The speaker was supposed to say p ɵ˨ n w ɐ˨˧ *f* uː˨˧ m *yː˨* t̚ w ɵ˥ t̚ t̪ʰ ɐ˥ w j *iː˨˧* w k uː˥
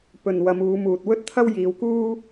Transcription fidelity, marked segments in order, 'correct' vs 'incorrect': incorrect: m, incorrect: uː˨, correct

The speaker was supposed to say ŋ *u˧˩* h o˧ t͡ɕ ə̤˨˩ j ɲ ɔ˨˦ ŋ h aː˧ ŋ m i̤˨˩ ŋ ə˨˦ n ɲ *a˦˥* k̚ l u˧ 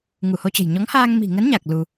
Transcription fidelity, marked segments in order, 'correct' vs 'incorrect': correct, incorrect: a˨˩

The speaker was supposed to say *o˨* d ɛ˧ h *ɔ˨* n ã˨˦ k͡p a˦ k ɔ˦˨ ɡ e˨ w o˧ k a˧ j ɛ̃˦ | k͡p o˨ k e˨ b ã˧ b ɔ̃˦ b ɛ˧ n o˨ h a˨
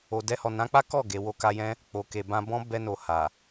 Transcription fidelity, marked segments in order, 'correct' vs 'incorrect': correct, correct

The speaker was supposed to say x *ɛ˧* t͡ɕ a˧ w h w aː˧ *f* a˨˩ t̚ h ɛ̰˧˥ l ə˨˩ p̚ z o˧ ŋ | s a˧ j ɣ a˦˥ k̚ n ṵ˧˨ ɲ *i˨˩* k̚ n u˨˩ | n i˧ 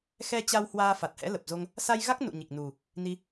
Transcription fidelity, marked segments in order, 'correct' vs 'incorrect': correct, correct, correct

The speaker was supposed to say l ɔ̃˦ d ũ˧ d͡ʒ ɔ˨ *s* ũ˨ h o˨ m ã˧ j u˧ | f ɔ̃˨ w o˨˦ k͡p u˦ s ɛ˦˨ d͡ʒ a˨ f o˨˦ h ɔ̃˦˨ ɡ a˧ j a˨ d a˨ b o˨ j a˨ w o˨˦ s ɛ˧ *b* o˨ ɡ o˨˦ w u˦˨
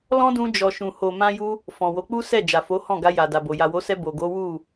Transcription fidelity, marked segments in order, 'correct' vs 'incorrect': incorrect: ʃ, correct

